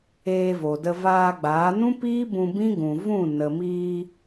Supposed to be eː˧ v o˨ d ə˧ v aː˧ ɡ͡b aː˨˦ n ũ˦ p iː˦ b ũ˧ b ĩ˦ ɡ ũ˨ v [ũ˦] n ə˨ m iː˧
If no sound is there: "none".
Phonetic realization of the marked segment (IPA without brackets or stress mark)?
ũ˦˨